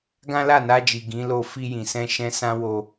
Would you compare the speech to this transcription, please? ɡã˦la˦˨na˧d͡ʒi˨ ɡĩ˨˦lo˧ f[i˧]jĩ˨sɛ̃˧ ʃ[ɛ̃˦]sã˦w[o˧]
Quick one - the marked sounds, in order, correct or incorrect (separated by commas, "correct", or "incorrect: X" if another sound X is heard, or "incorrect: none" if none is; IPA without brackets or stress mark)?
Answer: correct, correct, correct